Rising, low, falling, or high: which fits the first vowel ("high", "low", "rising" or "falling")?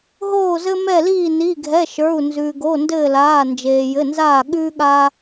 falling